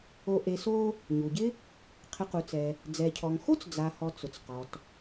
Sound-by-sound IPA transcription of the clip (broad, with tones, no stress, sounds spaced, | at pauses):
o˨ ʔ e˨ s o˦ | ɲ u˩ ɟ ɪ˥ | qʰ ɪ˨ q u˩ t͡s ɛ˩ | d͡z ɛ˩ cʰ ɔ˩ ŋ x o˥ t͡s d͡z a˩ h ɔ˩ t͡s ʊ˩ t͡s q ɔ˩ t